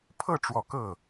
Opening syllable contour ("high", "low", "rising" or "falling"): falling